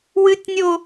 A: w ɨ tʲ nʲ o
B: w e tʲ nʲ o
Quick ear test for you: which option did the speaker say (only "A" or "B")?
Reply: A